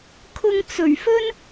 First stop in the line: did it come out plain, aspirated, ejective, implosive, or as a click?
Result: aspirated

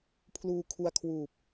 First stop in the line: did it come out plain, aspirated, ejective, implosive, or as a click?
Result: aspirated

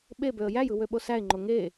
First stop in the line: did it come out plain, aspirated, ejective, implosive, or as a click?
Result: implosive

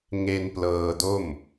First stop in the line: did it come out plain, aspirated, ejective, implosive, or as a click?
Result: plain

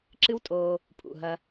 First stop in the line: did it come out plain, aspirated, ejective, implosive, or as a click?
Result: click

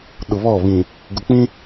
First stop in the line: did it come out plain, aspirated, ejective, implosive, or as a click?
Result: implosive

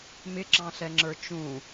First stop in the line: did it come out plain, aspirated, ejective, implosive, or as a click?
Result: click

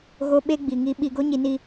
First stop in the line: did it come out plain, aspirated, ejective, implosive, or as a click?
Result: implosive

